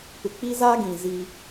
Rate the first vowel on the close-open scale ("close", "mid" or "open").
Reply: close